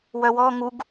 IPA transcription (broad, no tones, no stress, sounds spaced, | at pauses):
w œ w ɔ ŋ u ɡ